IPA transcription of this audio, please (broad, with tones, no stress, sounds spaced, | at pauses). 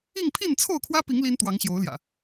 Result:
i˥˨ ŋ pʰ i˥˨ n t͡sʰ o˥˨ ʊ̯ kʰ w ä˦ p i˨˦ ŋ l i˦ n t̪ w ɑ˨˦ ŋ ɕ j o˨˦ ʊ̯ l j ä̰˨˩